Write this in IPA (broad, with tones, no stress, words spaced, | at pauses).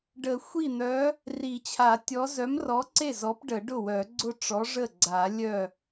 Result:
ɖə˨˩˦xʷi˥˩ n̪œ˨˥ | ri˨˩˦t͡ɕʰa˨˩˦ tʲɔ˨˥ zœ˨˥mrɔ˨˥ǀe˥˩ zɔ˨˥pɖə˨˩˦ɖʊ˥˩wœ˨˩˦ ɡ͡ǀʊ˥˩ʈ͡ʂɔ˨˥ ʐə˥˩ɡ͡ǀa˨˩˦ lʲœ˥˩